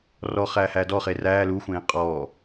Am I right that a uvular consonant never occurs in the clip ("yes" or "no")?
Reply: no